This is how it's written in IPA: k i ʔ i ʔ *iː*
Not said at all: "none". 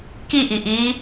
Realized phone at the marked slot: iː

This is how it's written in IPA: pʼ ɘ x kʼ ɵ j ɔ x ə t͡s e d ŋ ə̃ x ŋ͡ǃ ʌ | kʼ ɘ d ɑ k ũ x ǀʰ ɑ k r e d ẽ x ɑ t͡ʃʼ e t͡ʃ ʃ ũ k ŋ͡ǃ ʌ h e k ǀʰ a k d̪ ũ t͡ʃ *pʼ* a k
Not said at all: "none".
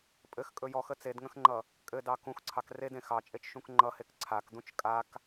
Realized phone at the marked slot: kʼ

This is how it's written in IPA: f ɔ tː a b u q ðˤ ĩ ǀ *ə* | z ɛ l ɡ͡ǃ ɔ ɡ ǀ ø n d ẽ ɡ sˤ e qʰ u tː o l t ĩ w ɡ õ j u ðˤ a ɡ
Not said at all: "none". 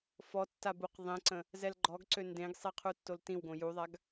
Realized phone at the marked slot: ə̃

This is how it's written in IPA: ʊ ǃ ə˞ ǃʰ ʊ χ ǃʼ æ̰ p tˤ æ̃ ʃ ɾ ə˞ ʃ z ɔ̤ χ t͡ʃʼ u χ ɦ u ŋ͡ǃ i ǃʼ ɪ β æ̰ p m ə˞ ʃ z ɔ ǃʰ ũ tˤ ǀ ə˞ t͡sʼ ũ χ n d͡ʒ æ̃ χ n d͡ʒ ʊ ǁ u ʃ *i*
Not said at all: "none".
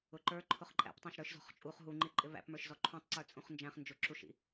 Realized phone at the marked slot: ḭ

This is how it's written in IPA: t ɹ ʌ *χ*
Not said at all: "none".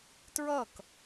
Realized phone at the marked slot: k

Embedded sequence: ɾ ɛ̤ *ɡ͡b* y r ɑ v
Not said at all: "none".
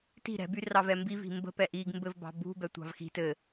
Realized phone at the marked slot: b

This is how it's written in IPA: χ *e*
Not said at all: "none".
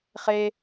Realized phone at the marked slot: e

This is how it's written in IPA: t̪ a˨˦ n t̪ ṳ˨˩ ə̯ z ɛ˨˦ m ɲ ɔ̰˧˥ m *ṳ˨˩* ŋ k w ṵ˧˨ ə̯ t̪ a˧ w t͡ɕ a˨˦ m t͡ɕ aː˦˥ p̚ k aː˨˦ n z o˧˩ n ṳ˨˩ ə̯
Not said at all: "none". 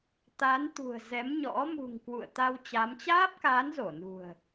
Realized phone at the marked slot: ṳ˨˩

